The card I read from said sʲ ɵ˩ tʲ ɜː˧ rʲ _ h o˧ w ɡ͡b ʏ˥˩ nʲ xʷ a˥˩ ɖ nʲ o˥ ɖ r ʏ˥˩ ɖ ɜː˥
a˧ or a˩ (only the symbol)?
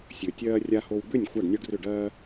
a˧